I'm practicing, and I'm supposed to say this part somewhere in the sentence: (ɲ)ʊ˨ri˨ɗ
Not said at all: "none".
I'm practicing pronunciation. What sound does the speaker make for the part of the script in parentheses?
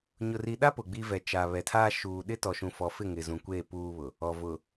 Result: ɲ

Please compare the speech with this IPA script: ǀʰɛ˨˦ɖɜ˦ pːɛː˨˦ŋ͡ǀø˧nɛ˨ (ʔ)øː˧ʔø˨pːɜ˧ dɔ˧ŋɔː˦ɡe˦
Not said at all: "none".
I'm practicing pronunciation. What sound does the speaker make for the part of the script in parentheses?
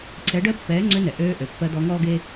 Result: ʔ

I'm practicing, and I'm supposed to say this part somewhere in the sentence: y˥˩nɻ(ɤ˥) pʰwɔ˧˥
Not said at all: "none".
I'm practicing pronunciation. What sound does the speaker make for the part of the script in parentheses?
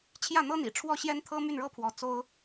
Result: ɤ˥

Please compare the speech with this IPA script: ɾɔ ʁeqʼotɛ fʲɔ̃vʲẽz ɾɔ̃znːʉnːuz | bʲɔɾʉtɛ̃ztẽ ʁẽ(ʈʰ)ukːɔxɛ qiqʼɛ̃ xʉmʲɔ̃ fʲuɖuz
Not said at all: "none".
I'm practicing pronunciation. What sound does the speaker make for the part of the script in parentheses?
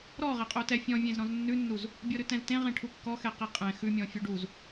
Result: ʈʰ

